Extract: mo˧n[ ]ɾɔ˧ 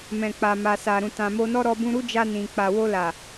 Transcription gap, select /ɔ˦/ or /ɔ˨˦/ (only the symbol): ɔ˦